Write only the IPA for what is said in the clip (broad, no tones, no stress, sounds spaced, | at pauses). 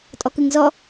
tʼ ɔ k ɯ ŋ z ɔ